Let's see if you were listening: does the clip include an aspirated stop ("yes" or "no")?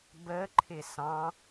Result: yes